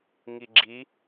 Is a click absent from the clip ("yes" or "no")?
no